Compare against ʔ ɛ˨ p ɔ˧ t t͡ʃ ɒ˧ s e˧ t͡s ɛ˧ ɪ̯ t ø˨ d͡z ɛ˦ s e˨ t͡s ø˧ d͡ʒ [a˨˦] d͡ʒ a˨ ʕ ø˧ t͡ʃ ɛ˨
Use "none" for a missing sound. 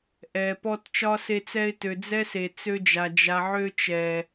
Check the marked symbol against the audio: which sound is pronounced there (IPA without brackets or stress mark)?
a˨